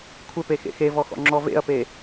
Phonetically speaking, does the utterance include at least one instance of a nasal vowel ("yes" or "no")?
no